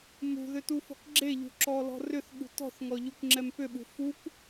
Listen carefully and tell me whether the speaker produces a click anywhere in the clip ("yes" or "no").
yes